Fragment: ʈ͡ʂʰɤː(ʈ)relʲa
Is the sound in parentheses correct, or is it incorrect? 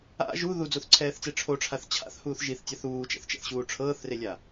incorrect